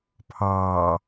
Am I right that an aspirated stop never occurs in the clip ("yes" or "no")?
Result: no